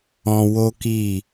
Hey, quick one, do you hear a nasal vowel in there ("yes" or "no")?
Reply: yes